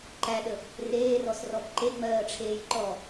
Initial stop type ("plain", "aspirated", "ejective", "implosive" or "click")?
click